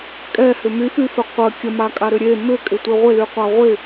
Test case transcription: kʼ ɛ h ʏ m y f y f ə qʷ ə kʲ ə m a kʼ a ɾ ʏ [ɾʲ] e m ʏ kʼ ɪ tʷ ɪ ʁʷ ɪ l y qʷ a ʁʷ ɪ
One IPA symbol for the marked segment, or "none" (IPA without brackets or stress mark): ɾʲ